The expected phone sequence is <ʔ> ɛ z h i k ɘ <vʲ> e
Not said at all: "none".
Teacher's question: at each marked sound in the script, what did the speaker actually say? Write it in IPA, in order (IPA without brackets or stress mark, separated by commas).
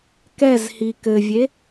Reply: k, vʲ